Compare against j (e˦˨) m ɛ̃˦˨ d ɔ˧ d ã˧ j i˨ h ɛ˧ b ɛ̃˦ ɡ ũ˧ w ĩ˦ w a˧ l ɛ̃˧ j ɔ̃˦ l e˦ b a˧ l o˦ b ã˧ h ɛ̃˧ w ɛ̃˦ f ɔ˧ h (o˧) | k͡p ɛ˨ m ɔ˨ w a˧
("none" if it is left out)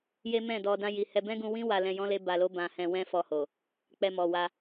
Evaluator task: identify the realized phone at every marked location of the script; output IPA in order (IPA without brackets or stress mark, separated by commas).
e˦, o˨